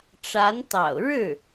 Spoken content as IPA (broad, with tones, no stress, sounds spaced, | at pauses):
ʈ͡ʂ a˧˥ n t̪ ɑ̰˨˩ ʊ̯ ɻ ɻ̩˥˩